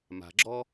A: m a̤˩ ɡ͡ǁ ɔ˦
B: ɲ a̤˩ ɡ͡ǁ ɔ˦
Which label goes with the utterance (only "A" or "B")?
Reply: A